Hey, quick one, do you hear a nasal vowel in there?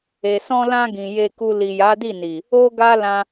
yes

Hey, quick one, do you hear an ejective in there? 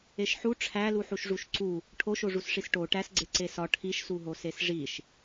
no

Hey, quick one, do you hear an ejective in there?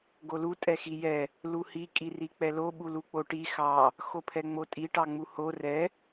yes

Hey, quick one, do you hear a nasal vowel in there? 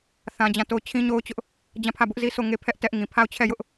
yes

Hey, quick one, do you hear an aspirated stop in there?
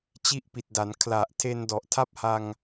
yes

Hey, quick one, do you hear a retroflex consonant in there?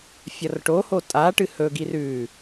yes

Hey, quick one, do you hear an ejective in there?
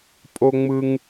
yes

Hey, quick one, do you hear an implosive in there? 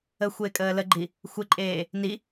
no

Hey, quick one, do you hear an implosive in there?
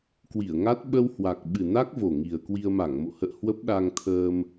yes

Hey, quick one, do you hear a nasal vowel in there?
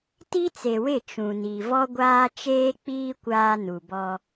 yes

